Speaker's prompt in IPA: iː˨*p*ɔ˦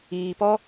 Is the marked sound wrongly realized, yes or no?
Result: no